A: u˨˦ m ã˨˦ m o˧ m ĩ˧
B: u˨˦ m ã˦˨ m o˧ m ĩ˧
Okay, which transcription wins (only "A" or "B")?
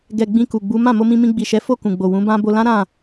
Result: B